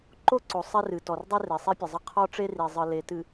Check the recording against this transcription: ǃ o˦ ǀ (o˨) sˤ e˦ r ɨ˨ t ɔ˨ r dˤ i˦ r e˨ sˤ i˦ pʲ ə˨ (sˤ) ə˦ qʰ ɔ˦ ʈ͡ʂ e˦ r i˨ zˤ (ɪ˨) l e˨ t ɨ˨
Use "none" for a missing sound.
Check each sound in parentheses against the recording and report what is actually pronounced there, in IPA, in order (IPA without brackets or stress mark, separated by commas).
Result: o˨, zˤ, ɨ˨